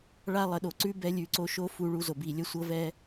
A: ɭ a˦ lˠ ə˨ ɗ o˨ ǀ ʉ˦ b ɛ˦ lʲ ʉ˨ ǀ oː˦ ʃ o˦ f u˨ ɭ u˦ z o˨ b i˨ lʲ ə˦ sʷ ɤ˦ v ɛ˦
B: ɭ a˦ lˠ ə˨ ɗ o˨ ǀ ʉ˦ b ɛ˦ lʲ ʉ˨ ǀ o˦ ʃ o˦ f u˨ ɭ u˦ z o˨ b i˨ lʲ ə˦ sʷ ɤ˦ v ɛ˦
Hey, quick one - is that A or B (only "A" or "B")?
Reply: B